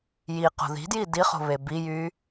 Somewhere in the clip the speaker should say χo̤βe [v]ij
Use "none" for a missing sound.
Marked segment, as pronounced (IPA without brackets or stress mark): b